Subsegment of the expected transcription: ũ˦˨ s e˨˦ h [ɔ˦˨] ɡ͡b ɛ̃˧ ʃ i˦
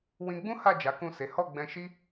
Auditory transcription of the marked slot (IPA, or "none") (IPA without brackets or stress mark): ɔ˦˨